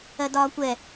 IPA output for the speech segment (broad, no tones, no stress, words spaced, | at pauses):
ɜdɒːkʷɛ